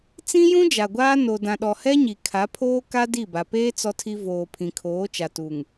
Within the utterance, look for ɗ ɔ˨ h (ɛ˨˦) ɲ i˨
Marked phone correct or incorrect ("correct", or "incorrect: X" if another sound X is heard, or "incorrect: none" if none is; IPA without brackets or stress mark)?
incorrect: ɛ˦